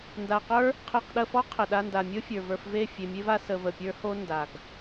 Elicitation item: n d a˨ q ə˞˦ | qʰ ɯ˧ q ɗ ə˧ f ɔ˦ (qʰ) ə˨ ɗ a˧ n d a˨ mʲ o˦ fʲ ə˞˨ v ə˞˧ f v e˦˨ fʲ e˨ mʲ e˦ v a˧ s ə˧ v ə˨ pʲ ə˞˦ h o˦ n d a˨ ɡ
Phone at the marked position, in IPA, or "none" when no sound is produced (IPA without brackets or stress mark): qʰ